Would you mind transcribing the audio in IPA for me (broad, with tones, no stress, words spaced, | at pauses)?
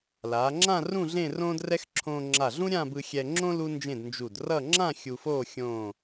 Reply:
laː˩˧ŋ͡ǁã˥˧ rũ˥˧ ɮẽ˥˧rõː˥drɛ˥x ǁʰõː˧ŋ͡ǁa˧˩ɮũ˥ ɾʲã˥˧bɯ˧ xʲɛ˧ŋ͡ǁõ˥ lu˥nd͡ʒẽ˥˧d nd͡ʒu˧˩drʌ˥˧ ŋ͡ǁã˥˧ xʲu˧foː˥˧ xʲõː˥˧